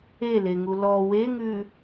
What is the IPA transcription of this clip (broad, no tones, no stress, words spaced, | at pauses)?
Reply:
eleŋu lɔ weŋʉ